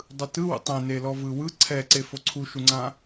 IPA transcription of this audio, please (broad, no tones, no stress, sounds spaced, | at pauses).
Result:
dˤ ɯ t ɯ w ṵ tˤ ɛ̃ n e l ɔ v ɯ w ɯ ǀʰ ɛ ǀ e f o ǀʰ u ʃ u ŋ͡ǀ ã